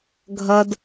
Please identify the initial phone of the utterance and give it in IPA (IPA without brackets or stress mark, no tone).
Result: ɡʱ